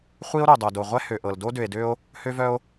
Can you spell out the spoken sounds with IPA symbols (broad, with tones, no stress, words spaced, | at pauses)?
χʷi˦o̯ ɾo˨dˤœ˨do˨ ʁʷɛ˦hø˨ʔɤ˨l do˦dø˨e̯dø˦o̯ | hø˦vœ˦o̯